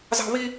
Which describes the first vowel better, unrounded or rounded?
unrounded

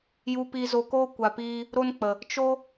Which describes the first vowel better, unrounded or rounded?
rounded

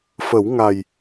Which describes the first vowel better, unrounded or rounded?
unrounded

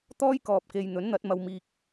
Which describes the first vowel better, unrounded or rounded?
rounded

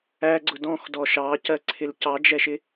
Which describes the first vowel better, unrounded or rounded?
unrounded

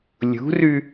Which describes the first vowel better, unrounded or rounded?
rounded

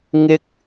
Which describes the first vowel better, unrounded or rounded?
unrounded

